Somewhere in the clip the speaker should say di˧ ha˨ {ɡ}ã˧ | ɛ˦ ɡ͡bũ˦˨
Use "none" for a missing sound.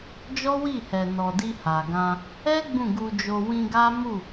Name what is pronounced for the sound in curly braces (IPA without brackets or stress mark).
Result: ɡ